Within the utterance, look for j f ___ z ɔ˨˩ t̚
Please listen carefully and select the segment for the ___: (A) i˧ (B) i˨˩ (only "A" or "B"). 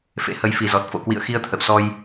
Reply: B